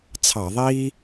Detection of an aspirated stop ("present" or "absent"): present